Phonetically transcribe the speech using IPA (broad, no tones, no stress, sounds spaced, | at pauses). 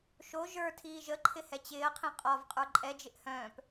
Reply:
ʃ o ʒ ə˞ tʰ iː ʒ ə ǃʰ ɪ h ɛ t͡ɕ ɪː ɐ̯ qʰ ĩ qʼ ɒ v qʼ ə˞ ǃʼ ɛ d͡ʒ ɪ ʔ h œ̃ː p